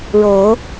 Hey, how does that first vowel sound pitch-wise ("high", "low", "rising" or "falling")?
low